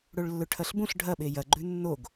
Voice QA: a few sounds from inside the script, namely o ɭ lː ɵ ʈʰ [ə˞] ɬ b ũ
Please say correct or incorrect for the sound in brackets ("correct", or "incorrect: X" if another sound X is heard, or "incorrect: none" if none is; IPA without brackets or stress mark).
incorrect: ɐ